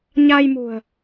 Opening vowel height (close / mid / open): open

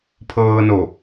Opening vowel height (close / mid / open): mid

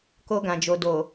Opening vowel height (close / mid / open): mid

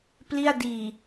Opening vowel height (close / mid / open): close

